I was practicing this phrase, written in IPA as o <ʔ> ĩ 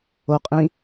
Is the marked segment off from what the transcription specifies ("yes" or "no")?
yes